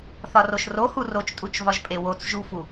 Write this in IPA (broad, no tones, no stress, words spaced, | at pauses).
θɒroʃrohu rot͡ʃtʼut͡ʃvɒʒpʼe wot͡s ʒufu